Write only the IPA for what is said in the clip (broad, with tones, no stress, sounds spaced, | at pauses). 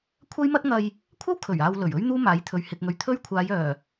kʷʰ ɐ˥ j m ɐ˥ t̚ ŋ ɐ˧ j | kʷʰ ɐ˥ w kʰ ɵ˨˩ ɥ aː˧ w l ɵ˨˩ ɥ ɵ˥ ɥ n̪ uː˥ m aː˨˥ j t̪ʰ ɵ˨ ɥ h ɪ˨ k̚ ŋ ɵ˨ ɥ t̪ʰ ɵ˥ ɥ kʷʰ aː˨˧ j œː˨˩